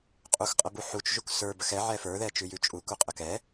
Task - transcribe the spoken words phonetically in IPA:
qʼ u x qʼ ə b u ħ u t͡ʃ ʒ u k s ə˞ b ə x ɛ ʕ ɛ f ə˞ ð ɛ t͡ʃ ʉ j ʉ t͡ʃʼ u k u qʼ ə k ɛ

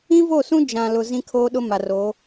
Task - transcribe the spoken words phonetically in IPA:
ĩ˦ v o˦˨ s ũ˦ d͡ʒ ã˨ l ʊ˨ z ĩ˦ kʰ oː˦ ɗ ʊ˦ m a˨ r o˨˦

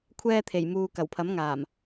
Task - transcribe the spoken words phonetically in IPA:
kʷʰ ɛː˥ t̪ʰ e˨˩ j m uː˨ k ɐ˨˩ w pʰ ɐ˨˥ m ŋ aː˨˩ m

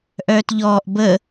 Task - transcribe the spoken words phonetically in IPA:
ʔ œː t ʎ ɔː ʔ b ə

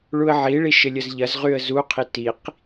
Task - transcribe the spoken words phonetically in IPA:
ɭ u ə̯ ʕ i ɭ i ʃ ɪ lʲ ə z ʎ ɐ z ʁ y ə̯ z u qʰ i t i q

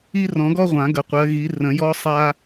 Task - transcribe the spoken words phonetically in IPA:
i˦ r ɔ̃˨˩˦ ɡ ɔ˦ ʁʷ ã˨˩˦ ɡ ə˨˦ qʷ ɜ˨˦ ɣ i˨˦ r ə̃˨˩˦ j ɔ˦ sˤ a˦

